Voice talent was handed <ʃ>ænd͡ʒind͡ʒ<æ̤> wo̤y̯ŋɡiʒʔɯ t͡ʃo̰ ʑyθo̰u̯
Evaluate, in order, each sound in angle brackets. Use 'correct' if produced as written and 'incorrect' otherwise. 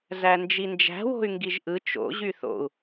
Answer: incorrect: z, correct

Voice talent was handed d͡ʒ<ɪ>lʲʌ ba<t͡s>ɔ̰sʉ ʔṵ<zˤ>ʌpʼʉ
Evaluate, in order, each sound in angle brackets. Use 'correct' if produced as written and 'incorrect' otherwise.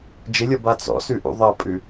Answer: correct, correct, incorrect: ðˤ

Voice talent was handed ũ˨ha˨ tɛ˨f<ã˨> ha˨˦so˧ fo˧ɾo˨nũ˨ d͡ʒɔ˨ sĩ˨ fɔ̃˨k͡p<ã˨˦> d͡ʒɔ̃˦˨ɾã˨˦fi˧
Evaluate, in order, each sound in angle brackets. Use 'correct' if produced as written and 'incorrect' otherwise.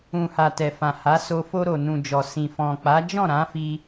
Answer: correct, incorrect: a˨˦

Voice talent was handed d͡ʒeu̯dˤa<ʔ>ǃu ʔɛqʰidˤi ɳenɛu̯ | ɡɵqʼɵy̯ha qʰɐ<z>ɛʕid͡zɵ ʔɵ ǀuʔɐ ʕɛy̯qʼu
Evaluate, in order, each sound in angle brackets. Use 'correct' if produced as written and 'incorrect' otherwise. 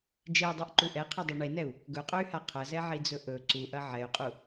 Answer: correct, correct

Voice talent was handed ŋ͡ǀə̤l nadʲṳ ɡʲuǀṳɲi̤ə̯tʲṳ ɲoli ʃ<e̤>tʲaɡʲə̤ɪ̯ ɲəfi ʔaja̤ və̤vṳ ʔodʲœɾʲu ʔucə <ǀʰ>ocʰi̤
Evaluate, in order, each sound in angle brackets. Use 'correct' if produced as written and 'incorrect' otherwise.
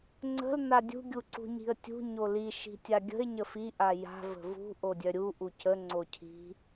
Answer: incorrect: i̤, incorrect: ŋ͡ǀ

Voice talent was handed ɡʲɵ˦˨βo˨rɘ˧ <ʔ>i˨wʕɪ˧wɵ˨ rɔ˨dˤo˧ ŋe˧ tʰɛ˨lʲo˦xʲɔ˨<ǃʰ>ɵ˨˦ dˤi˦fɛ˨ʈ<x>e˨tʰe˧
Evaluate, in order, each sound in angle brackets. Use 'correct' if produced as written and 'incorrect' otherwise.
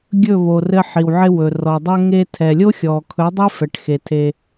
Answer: incorrect: ħ, incorrect: kʰ, correct

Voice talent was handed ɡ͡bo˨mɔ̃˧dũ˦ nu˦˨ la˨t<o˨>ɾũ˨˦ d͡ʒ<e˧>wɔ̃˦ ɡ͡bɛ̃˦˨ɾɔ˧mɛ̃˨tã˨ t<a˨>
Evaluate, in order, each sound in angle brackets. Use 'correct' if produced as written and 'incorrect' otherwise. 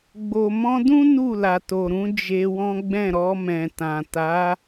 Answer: correct, correct, incorrect: a˨˦

